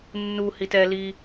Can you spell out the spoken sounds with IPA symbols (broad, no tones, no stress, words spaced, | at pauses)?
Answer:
nːuhit ɛli